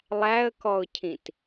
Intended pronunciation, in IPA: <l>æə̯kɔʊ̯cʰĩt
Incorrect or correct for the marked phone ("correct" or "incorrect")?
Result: incorrect